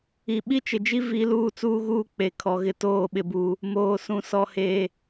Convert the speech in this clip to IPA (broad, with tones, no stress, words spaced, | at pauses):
i˨ ɓi˦t͡ʃɪ˨d͡ʒi˦ vi˦ luː˦˨t͡suː˦ɣuː˦ k͡pe˨ kʰɔ˨ ɣɪ˨ toː˦˨ɓɪ˨buː˨ | moː˨sũ˨ sɔ˨heː˨